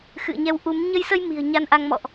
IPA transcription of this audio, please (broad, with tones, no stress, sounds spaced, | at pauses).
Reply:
x ɨ̰˧˨ ə̯ ɲ ɛ˨˦ w ʔ u˨˦ m ɲ ə˧ j s ə˧ j m i̤˨˩ ə̯ ɲ a˧ n ʔ a˧ ŋ m ɔ̰˧˨ ʔ